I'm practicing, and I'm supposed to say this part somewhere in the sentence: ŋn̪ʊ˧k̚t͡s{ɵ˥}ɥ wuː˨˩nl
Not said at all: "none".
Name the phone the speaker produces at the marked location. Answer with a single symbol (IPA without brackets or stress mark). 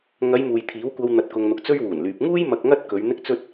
ɵ˥